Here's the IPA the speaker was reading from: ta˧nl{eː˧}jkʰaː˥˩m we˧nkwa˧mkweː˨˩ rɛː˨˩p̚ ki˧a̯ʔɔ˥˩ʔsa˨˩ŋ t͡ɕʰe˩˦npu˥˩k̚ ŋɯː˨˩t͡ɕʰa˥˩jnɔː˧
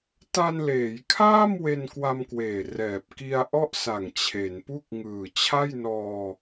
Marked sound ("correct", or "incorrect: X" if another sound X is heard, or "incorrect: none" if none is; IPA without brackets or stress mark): incorrect: eː˩˦